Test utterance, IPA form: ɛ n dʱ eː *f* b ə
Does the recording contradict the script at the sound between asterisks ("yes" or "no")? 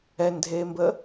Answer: yes